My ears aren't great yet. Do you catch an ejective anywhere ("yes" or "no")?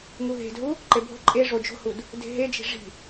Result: yes